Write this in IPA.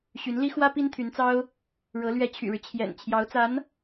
ɕ y˧˥ n l i˥ x w ä˥ p i˥ n t̪ʰ y˧˥ n t͡s ɑ˥ ʊ̯ | ɻ ɤ˧˥ l ɥ ɛ˧˥ t͡ɕʰ y̰˨˩ ɻ ɻ̩˦ t͡ɕʰ j ɛ̰˨˩ n t͡ɕʰ j ɑ˧˥ ʊ̯ t͡s a˧˥ n

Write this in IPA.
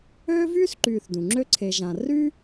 øː˥ v yː˥ s ǃ yː˨ θ d ũ˩ ŋ͡ǁ ø˥ ǀʰ e˨ ʒ ã˨ r y˥

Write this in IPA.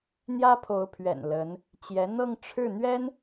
n̪ j ä˥ pʰ o˧˥ ʊ̯ pʰ ɥ ɛ̰˨˩ n l ə˧˥ n | t͡ɕ j ɛ˧˥ n̪ ɤ˥˧ ŋ ʈ͡ʂʰ ɻ̩˥˩ n̪ ɥ ɛ˥ n

